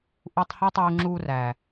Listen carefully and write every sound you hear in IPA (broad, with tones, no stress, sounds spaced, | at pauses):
ʔ u˧ tˤ h e˦ tˤ uː˧ ŋ͡ǁ uː˧ r æ˨